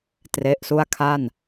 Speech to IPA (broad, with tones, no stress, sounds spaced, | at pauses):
t r e˦˥ ʔ s u˥˩ a̯ kʰ a˥˩ n